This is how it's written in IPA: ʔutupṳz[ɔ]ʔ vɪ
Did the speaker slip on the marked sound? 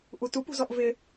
no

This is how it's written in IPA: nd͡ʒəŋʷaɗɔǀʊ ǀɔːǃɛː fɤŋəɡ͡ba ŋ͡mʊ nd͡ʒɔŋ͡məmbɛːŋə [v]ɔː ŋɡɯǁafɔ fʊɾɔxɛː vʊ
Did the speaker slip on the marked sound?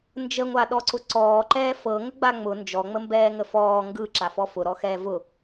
yes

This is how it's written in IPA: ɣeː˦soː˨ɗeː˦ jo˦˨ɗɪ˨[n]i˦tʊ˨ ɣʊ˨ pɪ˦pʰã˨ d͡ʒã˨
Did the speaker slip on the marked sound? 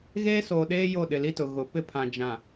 yes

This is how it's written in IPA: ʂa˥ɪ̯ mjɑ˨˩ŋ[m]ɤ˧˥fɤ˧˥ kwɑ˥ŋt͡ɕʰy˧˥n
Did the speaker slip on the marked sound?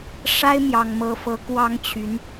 no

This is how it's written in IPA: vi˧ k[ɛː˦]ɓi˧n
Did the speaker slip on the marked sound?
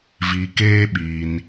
yes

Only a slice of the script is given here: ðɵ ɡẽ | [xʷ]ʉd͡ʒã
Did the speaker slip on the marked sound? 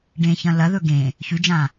yes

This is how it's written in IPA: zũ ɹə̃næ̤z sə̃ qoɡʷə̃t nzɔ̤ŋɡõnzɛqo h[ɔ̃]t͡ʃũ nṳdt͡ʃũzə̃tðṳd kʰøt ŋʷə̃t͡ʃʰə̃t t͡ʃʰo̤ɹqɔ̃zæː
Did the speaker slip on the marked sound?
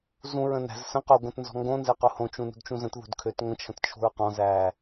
yes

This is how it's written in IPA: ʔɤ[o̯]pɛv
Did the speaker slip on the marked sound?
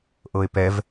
yes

